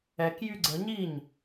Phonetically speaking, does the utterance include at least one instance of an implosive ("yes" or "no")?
no